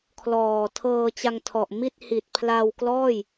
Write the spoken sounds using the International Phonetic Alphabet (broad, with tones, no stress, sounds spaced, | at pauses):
kʰ l ɔː˨˩ tʰ ɤː˧ t͡ɕ a˧ ŋ tʰ ɔ˨˩ ʔ m i˥˩ t̚ h i˨˩ t̚ pʰ l a˧ w k l ɔː˥˩ j